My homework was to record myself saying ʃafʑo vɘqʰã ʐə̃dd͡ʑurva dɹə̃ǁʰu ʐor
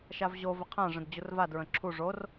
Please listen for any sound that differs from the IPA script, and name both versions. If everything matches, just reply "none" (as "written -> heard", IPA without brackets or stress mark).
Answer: f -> v